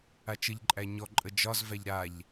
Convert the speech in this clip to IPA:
at͡ʃəʎǃʼæ ɲɔǃʼə d͡ʒɒzvæʎ ɾaʎ

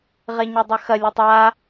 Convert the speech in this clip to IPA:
ʁeɲœdˤœxɐ lʲetˤa

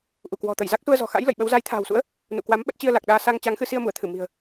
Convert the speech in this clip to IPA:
ʔu˧˩kwɔ̤˨˩t̪ə˧˩j za˦˥k̚su˧ə̯zɔ̤˨˩xa̰˧˥j lə̰˧˨jɓə˨˦w za˨˦jt̪ʰa̤ː˨˩wsṵ˧˥ə̯ | nṵ˧˨kwa˨˦mɓə˦˥t̚ t͡ɕi˧ə̯la˨˩k̚ɗaː˧ sa˧ŋt͡ɕa˨˦ŋxɨ˧ si˧ə̯mu˧˩ə̯t̪ʰɨ˧˩ mi̤˨˩ə̯

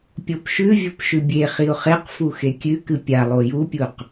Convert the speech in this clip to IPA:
pʲopʃʉvʲop ʃʉbʲeχiʊ̯ χeqfu xekʲʉkɨ pʲalˠo jupʲuq

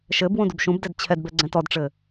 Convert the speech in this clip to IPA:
ʃɘbwũ dubʃũbdɛd t͡ɕʰɛdbɛ ɡ͡ǀɛ̃tɔdʈ͡ʂɘ

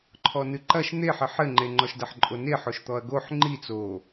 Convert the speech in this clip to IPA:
ǃʰɔnɨǃɐʃ n̪e ħɘħɘŋ͡ǃe ŋ͡ǃɔʃdɐħǃʼone ħoʃt̪ɔɐ̯ɡoħ ŋ͡ǃi t͡so

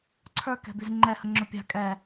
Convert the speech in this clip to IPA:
ǀʰə˞ kɛ̤byzŋ͡ǃɛ həŋ͡ǁɵpʲa̤ kʼɛ

